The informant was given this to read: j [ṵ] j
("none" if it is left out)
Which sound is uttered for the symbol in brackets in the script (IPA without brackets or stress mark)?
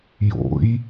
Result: o̰